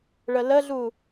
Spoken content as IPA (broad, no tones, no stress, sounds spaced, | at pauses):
ɭ ə l ə ɮ u